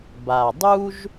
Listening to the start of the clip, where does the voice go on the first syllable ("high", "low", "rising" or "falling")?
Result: low